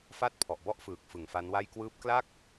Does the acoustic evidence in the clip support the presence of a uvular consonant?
no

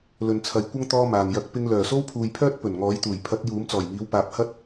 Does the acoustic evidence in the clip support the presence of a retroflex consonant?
no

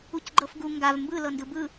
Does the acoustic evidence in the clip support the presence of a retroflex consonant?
no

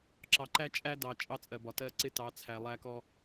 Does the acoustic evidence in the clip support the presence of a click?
yes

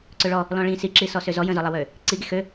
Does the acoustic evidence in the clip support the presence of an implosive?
no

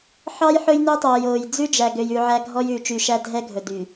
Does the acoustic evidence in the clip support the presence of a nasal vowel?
no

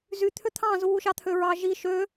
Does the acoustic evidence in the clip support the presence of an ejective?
no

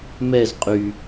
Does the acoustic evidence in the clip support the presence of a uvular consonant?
yes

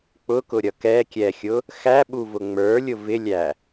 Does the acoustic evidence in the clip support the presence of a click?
no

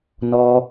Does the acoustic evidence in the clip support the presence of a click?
no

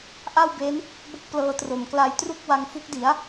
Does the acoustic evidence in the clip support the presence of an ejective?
no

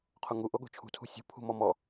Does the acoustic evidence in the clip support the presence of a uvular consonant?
yes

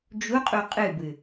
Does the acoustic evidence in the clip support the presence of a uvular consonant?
yes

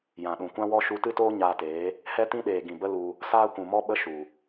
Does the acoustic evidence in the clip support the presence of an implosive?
yes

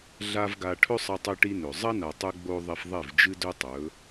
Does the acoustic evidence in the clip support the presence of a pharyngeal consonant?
no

